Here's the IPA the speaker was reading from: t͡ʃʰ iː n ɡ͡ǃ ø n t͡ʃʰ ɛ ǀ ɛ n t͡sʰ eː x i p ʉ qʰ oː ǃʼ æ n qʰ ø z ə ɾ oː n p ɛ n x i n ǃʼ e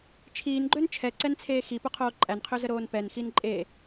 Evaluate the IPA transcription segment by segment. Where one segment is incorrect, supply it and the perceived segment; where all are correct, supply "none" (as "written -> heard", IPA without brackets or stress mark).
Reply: ʉ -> ʊ